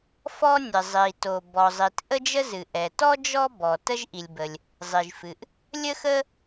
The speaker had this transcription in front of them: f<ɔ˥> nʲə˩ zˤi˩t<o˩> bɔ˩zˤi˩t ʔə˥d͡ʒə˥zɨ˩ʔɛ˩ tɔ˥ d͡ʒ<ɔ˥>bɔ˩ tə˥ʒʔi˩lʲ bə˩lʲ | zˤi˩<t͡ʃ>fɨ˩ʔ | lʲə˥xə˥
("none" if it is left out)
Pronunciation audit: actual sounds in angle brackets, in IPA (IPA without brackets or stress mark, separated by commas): ɔ˥, o˩, ɔ˥, ʒ